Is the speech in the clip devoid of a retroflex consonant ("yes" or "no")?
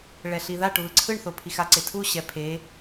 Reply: no